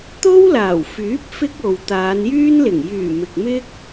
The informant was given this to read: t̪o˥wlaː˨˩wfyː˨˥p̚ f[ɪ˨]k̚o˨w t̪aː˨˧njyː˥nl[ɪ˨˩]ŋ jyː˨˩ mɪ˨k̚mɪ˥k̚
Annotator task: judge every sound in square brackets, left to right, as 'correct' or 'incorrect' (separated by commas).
incorrect, correct